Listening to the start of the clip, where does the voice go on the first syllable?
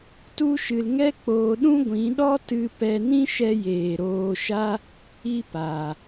high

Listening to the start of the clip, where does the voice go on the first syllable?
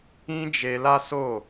high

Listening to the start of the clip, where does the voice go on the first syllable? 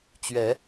rising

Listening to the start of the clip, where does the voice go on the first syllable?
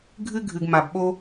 high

